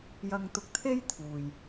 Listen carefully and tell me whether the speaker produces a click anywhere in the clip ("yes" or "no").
no